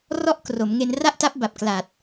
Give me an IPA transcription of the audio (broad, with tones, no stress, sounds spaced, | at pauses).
r ɔ˥˩ ʔ k r o˩˦ m ŋ e˧ n r a˥˩ ʔ t a˦˥ p̚ b a˨˩ p̚ k l a˨˩ t̚